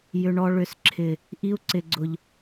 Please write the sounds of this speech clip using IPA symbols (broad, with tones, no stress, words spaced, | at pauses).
jʏ˨ɳɔ˧ ɭʏ˨sǁʰɪ˨ | ʔi˧u̯ǀɪ˨ɡ͡ǀʊ˨ʎ